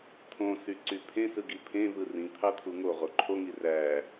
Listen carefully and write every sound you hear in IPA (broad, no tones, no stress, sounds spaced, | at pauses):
t̪ʰ õ s y ǀ y pʰ ẽ s ɯ ɡ i pʰ ẽ v ɯ r ĩ t̪ʰ ɑ t̪ʰ u ŋ o ʁ o ǃʰ o ŋ i r æ